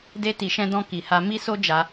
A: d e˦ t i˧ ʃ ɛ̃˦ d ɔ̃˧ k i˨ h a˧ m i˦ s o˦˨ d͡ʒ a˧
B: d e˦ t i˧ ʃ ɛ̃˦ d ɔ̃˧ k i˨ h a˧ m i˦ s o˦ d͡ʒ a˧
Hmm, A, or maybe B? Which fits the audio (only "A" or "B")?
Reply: B